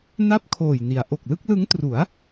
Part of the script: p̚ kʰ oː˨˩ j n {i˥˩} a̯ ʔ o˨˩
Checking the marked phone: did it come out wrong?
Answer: yes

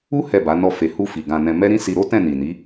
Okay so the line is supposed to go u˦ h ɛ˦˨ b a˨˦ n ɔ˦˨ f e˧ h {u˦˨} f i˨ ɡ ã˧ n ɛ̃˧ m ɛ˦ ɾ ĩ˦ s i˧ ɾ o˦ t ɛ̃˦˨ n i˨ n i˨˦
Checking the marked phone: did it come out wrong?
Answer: yes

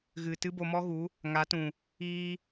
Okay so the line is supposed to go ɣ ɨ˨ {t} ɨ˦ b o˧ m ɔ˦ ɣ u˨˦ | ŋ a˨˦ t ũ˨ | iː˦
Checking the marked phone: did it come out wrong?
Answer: no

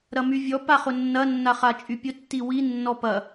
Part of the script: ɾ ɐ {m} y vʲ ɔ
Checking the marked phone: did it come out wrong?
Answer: no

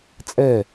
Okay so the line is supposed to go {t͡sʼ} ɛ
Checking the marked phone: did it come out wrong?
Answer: no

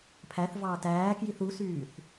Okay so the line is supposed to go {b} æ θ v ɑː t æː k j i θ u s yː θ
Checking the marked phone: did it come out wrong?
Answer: yes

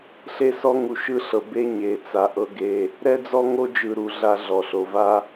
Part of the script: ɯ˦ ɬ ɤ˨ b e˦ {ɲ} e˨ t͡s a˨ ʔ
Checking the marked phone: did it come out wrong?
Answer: no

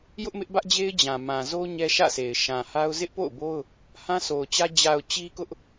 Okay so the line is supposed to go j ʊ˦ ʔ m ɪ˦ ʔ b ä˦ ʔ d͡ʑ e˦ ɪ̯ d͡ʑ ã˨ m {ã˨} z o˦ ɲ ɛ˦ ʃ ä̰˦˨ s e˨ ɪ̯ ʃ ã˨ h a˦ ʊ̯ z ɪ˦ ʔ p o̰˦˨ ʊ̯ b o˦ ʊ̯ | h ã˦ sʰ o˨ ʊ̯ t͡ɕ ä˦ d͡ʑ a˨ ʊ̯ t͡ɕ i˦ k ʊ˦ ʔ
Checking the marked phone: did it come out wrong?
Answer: no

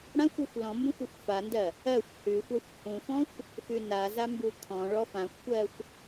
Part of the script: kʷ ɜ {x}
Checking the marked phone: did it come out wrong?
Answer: yes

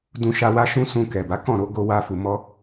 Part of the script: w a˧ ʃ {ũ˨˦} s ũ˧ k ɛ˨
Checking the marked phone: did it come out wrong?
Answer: yes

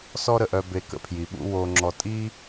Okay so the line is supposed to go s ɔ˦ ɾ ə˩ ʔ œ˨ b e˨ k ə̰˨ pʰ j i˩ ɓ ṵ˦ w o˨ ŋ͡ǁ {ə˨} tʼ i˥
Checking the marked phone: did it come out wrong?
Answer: yes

